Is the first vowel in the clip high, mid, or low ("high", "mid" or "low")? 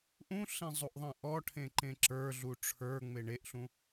high